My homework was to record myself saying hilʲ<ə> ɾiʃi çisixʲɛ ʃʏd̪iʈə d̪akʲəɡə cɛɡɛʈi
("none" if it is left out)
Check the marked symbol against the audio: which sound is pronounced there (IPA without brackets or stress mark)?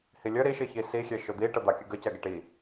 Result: ə